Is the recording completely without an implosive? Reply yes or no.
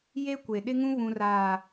no